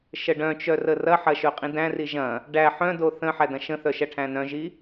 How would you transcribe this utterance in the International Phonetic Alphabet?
ʃ ə ɖ œ̃ t͡ʃ œ r ə r ɐ ħ ɐ ʃ œ qʼ ĩ d æ̃ r i ʒ ɐ̃ | ɖ æ ħ œ̃ d o θ ə̃ ħ æ d ɐ̃ ʃ ə̃ θ œ ʃ ɐ ʈʰ æ̃ n œ̃ ʒ i

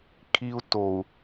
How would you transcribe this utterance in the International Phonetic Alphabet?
kʰ i˦ u̯ t o˨ u̯

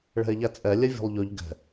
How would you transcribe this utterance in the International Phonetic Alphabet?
ɭ ɛ̤ e̯ ʎ æ t͡sʼ ɛ lʲ ɛ vʲ o̤ lˠ ʎ ʉ ʎ ɡ ɛ̤

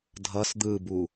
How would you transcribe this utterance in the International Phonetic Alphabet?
dʱ ʌ s d̪ ɯ b u

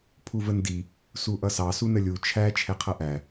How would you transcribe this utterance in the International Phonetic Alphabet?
pʰ u v ə n d i | s u ʔ ʌ s ɑ s u n ə lʲ u t͡ʃʰ æ t͡ʃʰ ɛ qʰ ʌ ʔ æ

